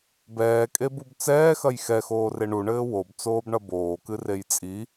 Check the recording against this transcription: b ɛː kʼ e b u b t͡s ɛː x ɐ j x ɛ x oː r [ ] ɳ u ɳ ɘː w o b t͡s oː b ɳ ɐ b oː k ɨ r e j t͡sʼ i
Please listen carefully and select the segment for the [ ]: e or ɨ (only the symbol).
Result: e